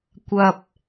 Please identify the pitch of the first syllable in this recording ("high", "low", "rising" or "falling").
low